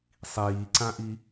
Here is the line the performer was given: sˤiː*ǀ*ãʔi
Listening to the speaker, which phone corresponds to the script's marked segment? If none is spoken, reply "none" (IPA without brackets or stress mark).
ǀ